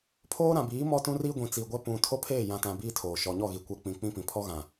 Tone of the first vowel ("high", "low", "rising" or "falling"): high